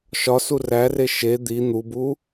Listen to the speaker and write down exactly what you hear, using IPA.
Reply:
ʃ ɒ s u r æ r e ʃ e d̪ i n̪ u b u

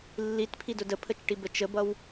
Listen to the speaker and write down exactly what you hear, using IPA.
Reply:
lː i t pʰ i d ʊ d ə pʰ ə t͡ʃ ʈ i b ə t͡ʃ ə b ʌ w

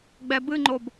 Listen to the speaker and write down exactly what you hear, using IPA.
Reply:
ɡ͡b ɛ b ɨ ŋ͡ǃ o b

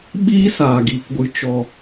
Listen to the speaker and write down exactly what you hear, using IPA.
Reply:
ɓ iː˦ s aː˦˨ ɡ iː˧ k ɡʷ ɨ˧ t͡ʃ ɔ˨

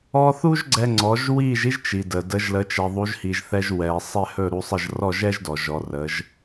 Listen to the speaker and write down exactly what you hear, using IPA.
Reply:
ɔ˧ θ u˥ ʒ ɡ͡ǀ ɛ˧ ŋ͡ǀ ɔ˩˥ ʒ w i˥˩ ʒ i˥ ʒ t͡ʃ i˩ d ə˩ d ə˩˥ ʒ l ə˩˥ t͡ʃ ɛ˩ ðˤ u˩˥ ʒ h i˩ ʒ θ ɛ˧ ʒ w ɛ˩ sˤ ɛ˥˩ h ɵ˥˩ ɾ u˧ sˤ ə˥˩ ʒ r ɔ˥˩ ʒ ɛ˥ ʒ d ɔ˩ ʒ ɔ˩˥ r ə˩˥ ʒ

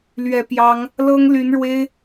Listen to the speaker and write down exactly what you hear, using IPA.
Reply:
l ɥ ɛ˨˩ p j ɑ˨˦ ŋ | l ɤ˦ ŋ l y˨˦ n ɻ w e˦ ɪ̯

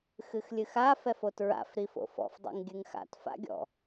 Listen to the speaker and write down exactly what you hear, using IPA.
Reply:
x ɨ x lʲ ɨ x a f ɛ f o t ɹ a̰ f ɾ i f o̰ f ɔ̰ f dˤ o̰ ŋ ɡʲ ɨ ŋ x a̰ t f a̰ ɡʲ ɔ̰

